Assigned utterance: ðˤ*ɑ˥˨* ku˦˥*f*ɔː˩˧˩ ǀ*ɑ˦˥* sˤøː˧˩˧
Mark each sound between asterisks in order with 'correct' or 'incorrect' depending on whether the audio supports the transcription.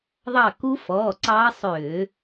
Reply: correct, correct, incorrect: ɑː˦˥

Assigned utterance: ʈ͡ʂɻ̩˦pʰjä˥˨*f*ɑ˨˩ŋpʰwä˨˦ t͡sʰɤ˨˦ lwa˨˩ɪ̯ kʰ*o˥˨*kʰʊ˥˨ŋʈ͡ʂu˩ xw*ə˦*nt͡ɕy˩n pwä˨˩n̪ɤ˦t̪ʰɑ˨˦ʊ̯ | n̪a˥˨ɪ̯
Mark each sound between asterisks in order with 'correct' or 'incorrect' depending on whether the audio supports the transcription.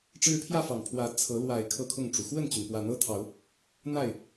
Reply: correct, incorrect: ɤ˥˨, incorrect: ə˥˨

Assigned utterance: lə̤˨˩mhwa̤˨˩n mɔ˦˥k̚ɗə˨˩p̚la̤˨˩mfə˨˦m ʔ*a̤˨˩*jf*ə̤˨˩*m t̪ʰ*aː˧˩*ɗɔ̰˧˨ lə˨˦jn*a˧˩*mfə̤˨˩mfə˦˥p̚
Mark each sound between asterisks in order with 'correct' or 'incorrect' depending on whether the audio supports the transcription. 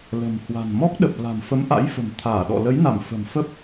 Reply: incorrect: a̰˧˥, correct, correct, correct

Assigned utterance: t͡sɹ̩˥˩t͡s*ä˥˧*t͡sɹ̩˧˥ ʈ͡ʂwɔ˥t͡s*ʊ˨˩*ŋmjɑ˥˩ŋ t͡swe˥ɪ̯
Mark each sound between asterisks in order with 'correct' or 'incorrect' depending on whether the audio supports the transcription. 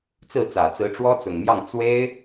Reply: incorrect: ä˨˩, correct

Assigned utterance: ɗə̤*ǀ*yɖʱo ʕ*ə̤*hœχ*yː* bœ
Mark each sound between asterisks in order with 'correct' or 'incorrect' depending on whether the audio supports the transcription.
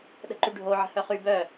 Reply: incorrect: ǃ, correct, incorrect: y

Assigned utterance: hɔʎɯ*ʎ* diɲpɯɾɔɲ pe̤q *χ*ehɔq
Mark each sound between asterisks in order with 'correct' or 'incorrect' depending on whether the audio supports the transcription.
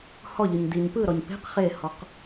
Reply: incorrect: ɲ, correct

